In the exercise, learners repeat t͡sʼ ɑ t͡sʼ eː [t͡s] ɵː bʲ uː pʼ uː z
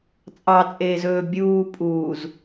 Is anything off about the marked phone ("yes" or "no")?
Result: yes